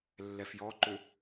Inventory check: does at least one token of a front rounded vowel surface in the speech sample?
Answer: yes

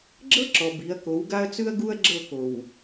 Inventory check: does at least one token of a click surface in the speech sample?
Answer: yes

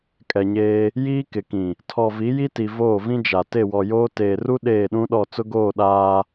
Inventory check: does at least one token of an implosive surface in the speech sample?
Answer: yes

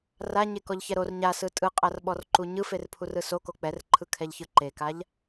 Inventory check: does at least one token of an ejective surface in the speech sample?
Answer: yes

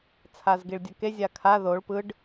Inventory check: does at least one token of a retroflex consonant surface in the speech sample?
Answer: yes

